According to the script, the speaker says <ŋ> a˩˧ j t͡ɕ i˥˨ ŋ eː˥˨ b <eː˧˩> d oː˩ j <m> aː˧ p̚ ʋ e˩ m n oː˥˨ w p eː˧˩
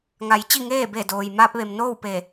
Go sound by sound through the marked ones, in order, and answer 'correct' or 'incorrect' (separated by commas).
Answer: correct, incorrect, correct